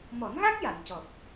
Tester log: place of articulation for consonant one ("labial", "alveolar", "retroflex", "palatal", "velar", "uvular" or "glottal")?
labial